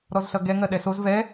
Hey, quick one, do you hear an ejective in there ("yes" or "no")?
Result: no